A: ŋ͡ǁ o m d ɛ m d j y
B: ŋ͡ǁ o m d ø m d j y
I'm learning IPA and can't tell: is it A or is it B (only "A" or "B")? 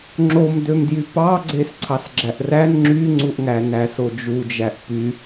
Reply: B